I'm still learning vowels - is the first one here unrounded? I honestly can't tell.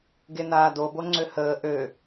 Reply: yes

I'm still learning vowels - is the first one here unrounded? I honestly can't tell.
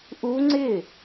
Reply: no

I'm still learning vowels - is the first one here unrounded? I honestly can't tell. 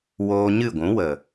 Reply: no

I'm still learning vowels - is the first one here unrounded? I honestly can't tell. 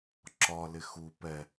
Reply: no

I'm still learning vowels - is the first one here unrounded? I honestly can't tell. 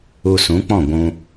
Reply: no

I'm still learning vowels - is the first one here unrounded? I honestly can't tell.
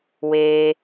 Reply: yes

